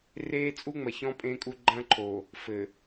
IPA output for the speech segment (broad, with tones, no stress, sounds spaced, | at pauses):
r eː˦ t͡sʼ u˦ ŋ͡m ɐ˨ ç ɔ̃˦ pʼ ẽ˦ kʼ u˦ ɡ͡ǃ ɐ̃˦ ǃʰ o˨ | f ɘ˨